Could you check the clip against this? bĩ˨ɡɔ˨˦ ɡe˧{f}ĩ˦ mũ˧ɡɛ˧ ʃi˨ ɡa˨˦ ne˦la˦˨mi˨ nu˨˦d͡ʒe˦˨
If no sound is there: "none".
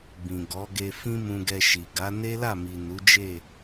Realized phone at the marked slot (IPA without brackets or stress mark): f